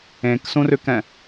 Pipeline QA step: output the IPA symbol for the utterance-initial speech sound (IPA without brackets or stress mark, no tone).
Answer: ẽ